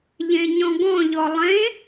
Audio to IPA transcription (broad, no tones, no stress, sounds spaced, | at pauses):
ʎ ẽ ɲ ɔ̃ ɡ ɔ̃ ʎ ɔ lˠ ẽ